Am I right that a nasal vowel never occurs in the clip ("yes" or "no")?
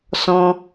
no